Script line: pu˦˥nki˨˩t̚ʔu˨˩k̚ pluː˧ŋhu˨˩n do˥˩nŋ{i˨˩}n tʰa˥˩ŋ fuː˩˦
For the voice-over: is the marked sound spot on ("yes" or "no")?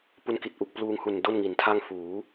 no